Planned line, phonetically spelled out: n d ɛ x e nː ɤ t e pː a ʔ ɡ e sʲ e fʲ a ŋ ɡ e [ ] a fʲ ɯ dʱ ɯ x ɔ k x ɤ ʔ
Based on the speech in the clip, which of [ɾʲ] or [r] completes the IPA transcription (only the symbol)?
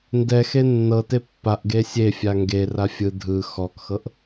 r